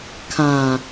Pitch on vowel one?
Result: low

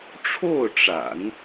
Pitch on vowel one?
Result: falling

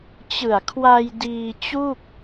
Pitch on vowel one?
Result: low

